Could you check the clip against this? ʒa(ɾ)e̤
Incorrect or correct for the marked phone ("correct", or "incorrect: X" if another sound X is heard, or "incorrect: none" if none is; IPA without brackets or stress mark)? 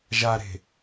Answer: correct